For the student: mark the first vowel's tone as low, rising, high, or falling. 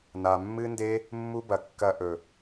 low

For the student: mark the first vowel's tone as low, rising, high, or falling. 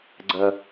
low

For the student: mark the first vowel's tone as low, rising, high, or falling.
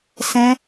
high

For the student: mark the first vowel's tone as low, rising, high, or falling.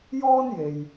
high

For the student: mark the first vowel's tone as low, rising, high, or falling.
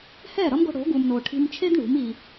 falling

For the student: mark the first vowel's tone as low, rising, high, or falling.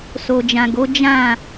low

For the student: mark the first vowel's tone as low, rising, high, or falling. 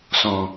low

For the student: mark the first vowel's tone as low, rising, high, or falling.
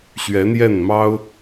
rising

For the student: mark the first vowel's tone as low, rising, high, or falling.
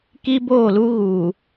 high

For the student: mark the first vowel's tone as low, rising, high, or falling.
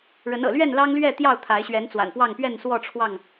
rising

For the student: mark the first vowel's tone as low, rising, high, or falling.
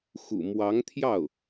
low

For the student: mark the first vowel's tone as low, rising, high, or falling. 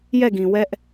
falling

